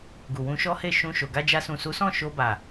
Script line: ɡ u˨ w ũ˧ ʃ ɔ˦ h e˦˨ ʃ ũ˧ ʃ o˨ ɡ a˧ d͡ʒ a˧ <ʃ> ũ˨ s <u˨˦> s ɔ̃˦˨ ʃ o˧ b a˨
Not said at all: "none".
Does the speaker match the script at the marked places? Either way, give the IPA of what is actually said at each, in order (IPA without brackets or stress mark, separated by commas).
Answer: s, u˨˦